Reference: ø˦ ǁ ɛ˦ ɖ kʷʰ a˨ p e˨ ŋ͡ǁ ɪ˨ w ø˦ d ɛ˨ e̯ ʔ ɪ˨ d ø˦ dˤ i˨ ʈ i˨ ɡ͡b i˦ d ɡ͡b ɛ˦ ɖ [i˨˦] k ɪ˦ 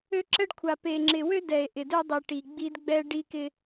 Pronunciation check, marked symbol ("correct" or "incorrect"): incorrect